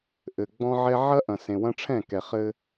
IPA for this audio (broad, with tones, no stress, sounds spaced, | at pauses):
ʔ ɘ˨ ɡ͡b ɔ̃˦ ʕ ɛ˦ ʕ ɐ˦ ʔ ɐ̃˨ s ẽ˨ w ɐ̃˦ ʈ͡ʂʰ ɛ̃˦˨ k ɛ˨ χ ɘ˦